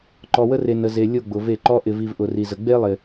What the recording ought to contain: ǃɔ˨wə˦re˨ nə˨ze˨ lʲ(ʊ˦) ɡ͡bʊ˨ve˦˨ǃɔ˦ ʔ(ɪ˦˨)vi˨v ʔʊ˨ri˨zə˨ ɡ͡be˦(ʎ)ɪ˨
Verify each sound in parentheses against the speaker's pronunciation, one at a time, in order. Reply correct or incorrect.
incorrect: ʊ˦˨, incorrect: ɪ˨, incorrect: lˠ

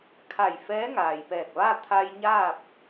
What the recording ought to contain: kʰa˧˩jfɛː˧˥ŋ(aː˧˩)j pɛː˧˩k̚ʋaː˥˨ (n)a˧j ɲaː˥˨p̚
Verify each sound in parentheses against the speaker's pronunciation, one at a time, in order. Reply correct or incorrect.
incorrect: aː˩, incorrect: t̪ʰ

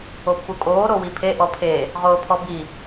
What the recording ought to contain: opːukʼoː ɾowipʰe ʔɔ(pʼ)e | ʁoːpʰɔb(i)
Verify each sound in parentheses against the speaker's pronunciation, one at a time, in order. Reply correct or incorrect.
incorrect: pʰ, correct

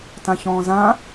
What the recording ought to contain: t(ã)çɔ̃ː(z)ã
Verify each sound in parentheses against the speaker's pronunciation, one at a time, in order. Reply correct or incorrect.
correct, correct

